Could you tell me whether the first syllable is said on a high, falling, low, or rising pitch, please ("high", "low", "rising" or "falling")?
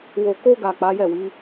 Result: low